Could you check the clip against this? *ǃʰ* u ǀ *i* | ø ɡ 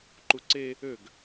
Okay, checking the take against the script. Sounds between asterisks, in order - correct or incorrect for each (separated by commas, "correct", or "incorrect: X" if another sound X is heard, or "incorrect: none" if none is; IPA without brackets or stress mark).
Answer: incorrect: ǃ, incorrect: e